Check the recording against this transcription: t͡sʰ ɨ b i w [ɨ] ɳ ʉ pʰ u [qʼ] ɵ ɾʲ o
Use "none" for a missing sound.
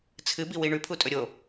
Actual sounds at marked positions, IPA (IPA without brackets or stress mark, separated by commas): i, tʼ